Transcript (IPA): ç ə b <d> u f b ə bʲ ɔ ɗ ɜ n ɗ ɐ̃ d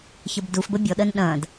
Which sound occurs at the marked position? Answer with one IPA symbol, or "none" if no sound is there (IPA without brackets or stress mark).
d